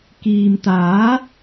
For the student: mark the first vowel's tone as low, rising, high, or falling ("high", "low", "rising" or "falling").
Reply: low